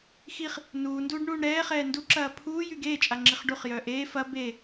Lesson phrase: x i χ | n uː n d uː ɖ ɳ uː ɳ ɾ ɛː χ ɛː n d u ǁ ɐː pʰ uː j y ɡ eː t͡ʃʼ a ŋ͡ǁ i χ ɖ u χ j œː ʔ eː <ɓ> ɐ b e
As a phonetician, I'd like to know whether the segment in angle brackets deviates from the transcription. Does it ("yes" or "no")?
yes